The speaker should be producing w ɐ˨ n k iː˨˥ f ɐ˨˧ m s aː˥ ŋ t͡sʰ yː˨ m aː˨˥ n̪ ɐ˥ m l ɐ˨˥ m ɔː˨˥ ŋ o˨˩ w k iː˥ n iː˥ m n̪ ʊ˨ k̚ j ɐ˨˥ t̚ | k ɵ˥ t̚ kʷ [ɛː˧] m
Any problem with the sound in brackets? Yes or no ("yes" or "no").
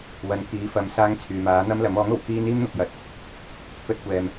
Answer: no